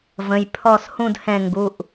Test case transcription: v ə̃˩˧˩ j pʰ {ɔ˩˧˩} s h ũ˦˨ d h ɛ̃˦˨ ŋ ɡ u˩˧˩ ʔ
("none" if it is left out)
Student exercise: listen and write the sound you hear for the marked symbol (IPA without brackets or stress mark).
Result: ɔ˦˨